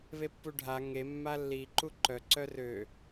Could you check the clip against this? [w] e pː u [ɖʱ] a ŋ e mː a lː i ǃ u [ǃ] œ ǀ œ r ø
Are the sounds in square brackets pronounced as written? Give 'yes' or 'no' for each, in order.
no, yes, yes

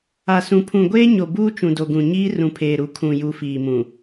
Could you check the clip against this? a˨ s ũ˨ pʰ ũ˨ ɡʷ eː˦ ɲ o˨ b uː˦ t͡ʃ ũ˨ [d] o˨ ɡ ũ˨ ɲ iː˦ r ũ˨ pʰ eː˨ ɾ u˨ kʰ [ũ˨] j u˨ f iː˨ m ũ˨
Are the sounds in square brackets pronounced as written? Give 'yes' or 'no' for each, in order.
yes, yes

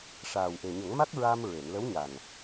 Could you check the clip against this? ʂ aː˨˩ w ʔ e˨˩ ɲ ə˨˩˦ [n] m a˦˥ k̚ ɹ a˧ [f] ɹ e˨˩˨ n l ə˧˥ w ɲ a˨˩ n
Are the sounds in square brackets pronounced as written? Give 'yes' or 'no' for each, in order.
no, no

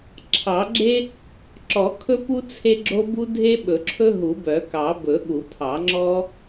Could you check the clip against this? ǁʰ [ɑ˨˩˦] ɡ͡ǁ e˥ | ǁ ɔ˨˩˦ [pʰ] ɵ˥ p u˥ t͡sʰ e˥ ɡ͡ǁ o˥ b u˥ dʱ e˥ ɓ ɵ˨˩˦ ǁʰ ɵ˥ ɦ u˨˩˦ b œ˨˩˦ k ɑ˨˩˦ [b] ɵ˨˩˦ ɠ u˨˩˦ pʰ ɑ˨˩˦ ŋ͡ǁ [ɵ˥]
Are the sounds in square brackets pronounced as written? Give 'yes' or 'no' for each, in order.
yes, no, yes, no

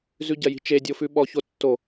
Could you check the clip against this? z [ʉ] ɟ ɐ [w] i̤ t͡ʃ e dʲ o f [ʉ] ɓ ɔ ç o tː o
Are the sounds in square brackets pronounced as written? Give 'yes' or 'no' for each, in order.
yes, no, yes

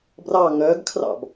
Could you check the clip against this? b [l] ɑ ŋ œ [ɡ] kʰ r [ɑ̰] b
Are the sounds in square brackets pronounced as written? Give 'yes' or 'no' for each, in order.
no, yes, yes

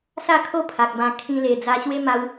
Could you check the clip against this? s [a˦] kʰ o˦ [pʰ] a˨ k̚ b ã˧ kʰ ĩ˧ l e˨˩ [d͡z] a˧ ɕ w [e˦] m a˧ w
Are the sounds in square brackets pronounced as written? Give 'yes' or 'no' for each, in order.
no, yes, yes, yes

